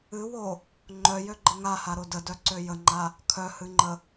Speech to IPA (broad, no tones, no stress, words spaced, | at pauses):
ɨwo | ŋ͡ǃœjøɡ͡ǃə ŋahaɾo dədœǀø jəŋ͡ǃa | kʰœhɨŋ͡ǃə